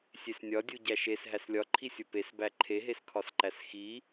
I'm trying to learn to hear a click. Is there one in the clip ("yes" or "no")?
yes